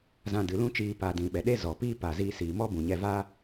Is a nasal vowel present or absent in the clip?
present